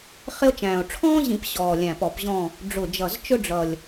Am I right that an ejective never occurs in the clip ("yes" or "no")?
yes